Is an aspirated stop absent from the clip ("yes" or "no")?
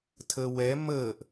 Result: no